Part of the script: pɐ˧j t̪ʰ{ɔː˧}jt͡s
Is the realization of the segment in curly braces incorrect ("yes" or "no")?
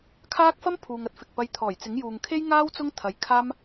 yes